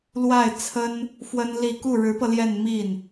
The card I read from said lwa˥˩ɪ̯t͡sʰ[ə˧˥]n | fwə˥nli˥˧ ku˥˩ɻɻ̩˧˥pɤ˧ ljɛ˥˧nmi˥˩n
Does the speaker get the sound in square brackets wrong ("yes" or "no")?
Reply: yes